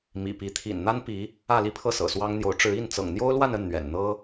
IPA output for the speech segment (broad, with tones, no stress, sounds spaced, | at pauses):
m ḭ˨˩ p i˧˥ t̪ʰ ḭ˨˩ n n̪ a˥ n p i˧˥ | ä˥˧ l i˥˧ pʰ ɤ˥˩ s ɤ̰˨˩ s w ɑ˥ ŋ n̪ j o˧˥ ʊ̯ ʈ͡ʂ ɻ̩˧˥ i˥˩ n t͡s ɤ̰˨˩ ŋ n̪ j o˥ ʊ̯ l w a˥˧ n ə˥˩ n n̪ ɥ ɛ̰˨˩ n n̪ ɤ˥